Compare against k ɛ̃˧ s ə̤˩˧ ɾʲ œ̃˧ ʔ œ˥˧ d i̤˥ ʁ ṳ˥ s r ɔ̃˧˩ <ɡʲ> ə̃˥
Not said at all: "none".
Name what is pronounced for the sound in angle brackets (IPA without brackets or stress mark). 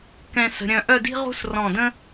d